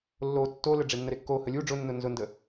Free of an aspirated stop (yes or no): yes